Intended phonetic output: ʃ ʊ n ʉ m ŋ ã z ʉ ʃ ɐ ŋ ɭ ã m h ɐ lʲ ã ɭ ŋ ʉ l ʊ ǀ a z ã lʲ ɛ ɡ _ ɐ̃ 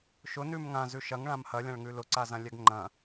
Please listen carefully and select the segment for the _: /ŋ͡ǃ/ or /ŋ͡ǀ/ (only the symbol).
ŋ͡ǃ